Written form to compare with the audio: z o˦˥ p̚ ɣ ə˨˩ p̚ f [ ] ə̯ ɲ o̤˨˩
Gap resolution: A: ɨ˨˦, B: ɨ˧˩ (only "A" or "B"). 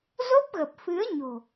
A